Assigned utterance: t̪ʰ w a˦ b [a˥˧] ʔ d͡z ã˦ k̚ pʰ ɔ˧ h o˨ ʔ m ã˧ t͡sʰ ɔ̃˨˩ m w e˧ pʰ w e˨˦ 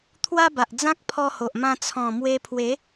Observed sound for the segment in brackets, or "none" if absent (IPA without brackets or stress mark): a˨